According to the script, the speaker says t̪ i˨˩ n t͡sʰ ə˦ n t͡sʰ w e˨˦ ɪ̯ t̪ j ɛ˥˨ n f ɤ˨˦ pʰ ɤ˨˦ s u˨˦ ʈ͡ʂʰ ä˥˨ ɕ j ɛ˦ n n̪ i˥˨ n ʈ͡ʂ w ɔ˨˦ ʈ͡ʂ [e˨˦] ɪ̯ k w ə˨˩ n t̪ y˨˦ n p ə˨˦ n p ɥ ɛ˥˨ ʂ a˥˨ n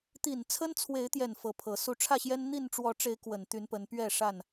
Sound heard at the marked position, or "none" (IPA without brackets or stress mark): e˨˦